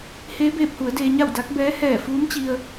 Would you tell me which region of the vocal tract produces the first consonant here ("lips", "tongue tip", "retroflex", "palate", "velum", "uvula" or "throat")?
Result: throat